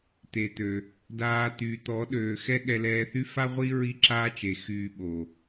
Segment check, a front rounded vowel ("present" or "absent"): present